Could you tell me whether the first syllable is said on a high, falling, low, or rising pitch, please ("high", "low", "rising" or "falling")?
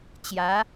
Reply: rising